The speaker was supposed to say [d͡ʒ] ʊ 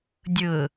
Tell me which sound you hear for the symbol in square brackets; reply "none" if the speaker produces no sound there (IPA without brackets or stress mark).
dʲ